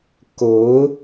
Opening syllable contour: rising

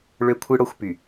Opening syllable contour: high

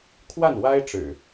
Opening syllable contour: falling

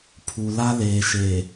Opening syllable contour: low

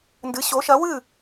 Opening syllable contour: rising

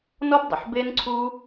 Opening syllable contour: high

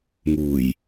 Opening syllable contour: low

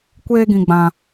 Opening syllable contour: high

